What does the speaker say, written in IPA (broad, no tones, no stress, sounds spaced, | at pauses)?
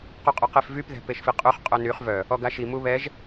q o qʼ œ q e f v y p ð ɛ̤ p e ʃ f i qʼ ø χ qʼ œ n y χ v œ | ɔ ɡ a ʃ i m u β ɛ ʒ